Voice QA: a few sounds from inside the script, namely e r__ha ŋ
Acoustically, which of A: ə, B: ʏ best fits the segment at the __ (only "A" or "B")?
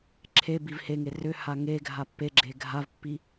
B